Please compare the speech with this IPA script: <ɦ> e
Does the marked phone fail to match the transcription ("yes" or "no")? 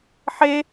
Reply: yes